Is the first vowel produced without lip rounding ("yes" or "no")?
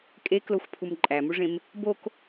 yes